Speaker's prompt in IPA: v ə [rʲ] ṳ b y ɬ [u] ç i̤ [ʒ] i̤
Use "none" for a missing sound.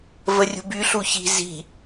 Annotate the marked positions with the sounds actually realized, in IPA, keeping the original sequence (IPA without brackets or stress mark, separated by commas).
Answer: rʲ, u, z